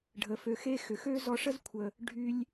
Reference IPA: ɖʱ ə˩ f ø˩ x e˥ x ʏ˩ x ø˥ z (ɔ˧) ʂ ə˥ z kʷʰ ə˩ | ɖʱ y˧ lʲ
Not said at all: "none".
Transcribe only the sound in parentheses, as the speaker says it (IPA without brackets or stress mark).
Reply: ɔ˧